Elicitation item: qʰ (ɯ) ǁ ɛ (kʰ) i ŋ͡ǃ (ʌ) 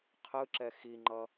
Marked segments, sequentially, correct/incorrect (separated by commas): correct, incorrect, correct